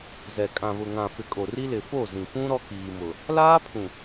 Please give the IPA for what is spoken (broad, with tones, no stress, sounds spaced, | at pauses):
z ɛ˨ kʼ ã˨ β ʊ˨ ŋ ã˨ f ɪ˨ kʼ o˨ r i˦ l ɪ˨ f o˦˨ z ĩ˨ p ũ˦ ɾ ɔ˦ k iː˨ m ʊ˨ | l aː˦ pʰ ũ˨